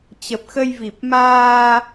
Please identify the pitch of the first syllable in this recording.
low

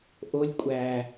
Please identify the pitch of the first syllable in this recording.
low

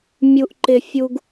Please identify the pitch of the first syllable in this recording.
high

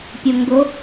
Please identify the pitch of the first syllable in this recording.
low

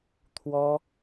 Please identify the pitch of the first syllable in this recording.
high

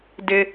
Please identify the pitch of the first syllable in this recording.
high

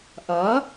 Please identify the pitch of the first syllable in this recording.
rising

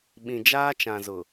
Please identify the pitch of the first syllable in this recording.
low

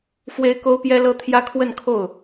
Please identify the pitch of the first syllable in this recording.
high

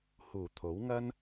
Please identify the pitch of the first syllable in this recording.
low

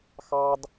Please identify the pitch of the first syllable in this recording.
high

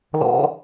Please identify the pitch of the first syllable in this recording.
high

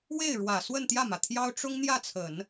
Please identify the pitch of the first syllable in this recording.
falling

